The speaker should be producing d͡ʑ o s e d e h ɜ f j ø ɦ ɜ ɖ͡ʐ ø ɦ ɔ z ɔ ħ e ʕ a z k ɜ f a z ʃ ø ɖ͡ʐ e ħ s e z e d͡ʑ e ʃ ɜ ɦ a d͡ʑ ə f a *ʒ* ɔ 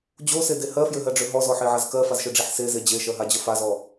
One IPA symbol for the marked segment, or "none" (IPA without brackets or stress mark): z